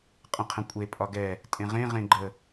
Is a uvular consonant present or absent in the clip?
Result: present